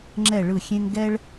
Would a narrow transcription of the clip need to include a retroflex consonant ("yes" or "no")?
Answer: yes